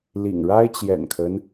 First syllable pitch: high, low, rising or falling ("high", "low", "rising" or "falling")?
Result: low